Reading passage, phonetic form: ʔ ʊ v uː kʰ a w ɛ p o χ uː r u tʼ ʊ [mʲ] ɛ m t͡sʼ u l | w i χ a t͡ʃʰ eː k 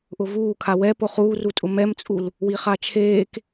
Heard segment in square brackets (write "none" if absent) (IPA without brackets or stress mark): m